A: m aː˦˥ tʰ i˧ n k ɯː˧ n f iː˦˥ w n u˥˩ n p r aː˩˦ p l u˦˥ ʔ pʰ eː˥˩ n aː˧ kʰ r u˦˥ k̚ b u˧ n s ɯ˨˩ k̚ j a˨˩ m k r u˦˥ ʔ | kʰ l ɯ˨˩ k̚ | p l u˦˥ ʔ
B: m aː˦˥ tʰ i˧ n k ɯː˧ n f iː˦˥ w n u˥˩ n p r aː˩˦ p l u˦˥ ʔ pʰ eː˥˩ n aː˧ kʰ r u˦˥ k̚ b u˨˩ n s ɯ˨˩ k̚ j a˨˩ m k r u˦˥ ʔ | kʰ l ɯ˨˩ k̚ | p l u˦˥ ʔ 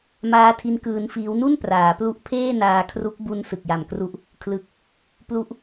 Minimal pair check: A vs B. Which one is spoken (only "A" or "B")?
A